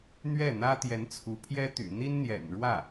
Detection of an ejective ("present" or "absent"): absent